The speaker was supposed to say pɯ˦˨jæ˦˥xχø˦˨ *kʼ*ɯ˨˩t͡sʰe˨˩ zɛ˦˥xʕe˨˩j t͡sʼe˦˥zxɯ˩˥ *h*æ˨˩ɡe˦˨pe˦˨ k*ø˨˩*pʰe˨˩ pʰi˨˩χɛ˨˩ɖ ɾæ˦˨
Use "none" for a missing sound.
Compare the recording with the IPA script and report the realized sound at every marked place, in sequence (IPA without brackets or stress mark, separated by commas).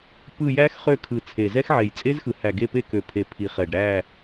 kʰ, h, ø˨˩